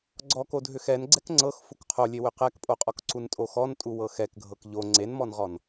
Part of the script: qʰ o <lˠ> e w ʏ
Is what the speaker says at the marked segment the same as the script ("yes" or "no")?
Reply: no